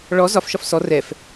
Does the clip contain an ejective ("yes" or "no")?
no